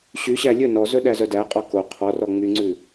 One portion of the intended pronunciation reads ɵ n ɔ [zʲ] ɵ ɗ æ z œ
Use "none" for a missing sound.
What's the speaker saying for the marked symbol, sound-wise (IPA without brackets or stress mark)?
z